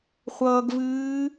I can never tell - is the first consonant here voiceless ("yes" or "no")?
yes